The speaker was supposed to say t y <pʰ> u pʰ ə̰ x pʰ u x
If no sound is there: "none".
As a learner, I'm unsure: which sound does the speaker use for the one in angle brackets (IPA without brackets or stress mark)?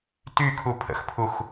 kʰ